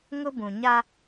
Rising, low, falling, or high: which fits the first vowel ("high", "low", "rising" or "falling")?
high